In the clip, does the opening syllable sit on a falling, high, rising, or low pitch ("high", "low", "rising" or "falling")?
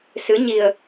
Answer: rising